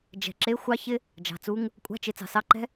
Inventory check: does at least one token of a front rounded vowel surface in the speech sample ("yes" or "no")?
no